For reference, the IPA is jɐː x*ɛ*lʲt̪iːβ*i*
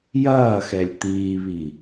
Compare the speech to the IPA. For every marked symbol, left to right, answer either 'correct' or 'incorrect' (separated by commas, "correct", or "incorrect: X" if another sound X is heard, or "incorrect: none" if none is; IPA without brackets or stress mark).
correct, correct